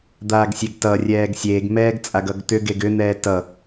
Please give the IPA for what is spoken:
d̪aːɡsʲeɡtʌrʲɛːɡ sʲeːɡmɛːɡ t͡sʼaɡʌɡt̪ʏɡeɡ ʏn̪ɛː tʌ

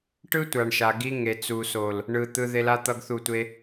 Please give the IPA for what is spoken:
ʈɯ˦tʷa˨ɳʃa˨ ɡi˧ŋe˨t͡su˨so˨l | ɳɯ˨t̪ɯ˧ ðe˧la˦ t̪ʌ˦ɡθu˦˨tʷe˦

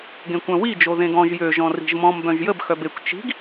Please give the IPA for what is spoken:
ɡẽkʷœ̃wid͡ʒo ðẽɡɔ̃ʒ jø ʒɔ̃ri̤ʒmɔ̃m bœ̃ʒjəb xœbekʷ t͡ʃi̤ɡ

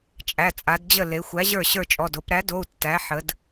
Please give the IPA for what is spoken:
t͡ʃʼæ˩˧˩t͡sʼa˩˧dd͡ʑə˥˩ le˩˧ xʷæ˨˥ʑə˞˥˩ ɕə˞˥˩t͡ʃʼɔ˩˧˩d o˩˧pɾæ˨˥do˩˧˩u̯ tːæ˨˥ ħə˩˧d

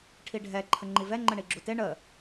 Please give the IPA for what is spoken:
ʈʰiɖʱɛ ǃʰəŋ͡ǃivɛ ŋ͡ǃəɳiɡ͡ǁute ɳə

